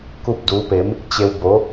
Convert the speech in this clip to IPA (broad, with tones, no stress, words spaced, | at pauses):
ku˥˨p̚duː˧˥pe˧˥m | t͡ɕe˧w bo˧˥